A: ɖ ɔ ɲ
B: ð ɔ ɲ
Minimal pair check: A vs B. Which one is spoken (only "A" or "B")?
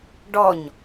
A